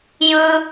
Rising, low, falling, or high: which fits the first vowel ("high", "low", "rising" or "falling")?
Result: high